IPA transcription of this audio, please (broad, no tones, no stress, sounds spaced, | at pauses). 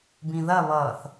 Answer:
b ĩ ð ɐ β ʌː θ